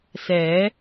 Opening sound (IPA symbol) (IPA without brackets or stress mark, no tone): s